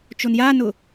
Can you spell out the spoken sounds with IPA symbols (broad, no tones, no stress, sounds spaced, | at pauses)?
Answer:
t͡ʃ o n j a n ʊ